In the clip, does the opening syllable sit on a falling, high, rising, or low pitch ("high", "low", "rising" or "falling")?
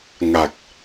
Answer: low